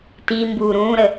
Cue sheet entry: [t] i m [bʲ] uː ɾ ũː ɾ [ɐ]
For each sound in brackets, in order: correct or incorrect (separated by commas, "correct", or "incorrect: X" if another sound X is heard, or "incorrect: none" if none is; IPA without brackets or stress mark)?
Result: correct, incorrect: b, incorrect: ə